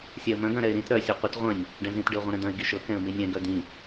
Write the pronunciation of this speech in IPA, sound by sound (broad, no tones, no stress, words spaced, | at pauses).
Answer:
sʲɛə̯mœ̃ɡ œ̃ɾɛɪ̯ɾĩt ɾœ sʲɤqʷɪt ʁʷœ̃nʲ | ɖɛ̃zĩt ɖɪʊ̯ʁʷĩɾɛ̃d̪œ̃ɪ̯ ɡiʃɤ kɛ̃ə̯minʲɛ̃ ɡœd̪ĩ